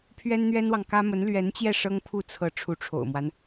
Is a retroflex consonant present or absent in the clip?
present